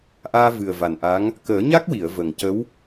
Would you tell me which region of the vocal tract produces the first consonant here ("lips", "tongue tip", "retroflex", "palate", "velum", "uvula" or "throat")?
throat